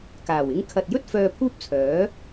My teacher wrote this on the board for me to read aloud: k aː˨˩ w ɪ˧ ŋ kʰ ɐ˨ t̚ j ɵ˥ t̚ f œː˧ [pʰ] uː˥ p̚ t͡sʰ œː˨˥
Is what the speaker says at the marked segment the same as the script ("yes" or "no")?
yes